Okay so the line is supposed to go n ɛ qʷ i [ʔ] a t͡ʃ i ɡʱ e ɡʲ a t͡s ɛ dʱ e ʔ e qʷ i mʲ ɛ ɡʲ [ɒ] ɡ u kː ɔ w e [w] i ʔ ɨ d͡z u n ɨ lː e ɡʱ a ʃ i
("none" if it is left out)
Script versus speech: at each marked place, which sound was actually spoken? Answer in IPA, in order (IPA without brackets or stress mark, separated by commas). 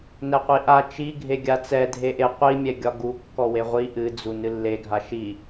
ʔ, ɒ, ʁʷ